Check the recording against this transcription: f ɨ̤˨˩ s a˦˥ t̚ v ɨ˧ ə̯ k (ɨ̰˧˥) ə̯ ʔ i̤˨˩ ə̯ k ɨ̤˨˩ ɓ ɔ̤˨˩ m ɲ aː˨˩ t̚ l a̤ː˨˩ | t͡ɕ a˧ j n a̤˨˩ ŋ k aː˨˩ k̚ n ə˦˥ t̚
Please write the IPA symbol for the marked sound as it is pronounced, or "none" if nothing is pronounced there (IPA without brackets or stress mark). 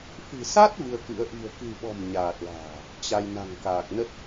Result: ɨ̰˧˥